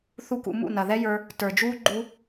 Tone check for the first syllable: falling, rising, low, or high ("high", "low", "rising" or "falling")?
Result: high